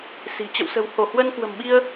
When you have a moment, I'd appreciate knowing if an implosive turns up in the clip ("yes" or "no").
yes